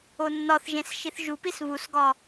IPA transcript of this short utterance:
o nː ɒ θ ʒ ẽ s ʃ i θ ʒ u p i s β u s ɡ ɒ

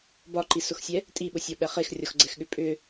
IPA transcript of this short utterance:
b ɒ ǃ i s ʊ x sʲ ɛ | tʼ i ɓ ʊ sʲ ɔ ɓ ɛ χ e x rʲ ɔ x ɡ͡ǀ ɛ x ɠ ʏ pʼ ʏ

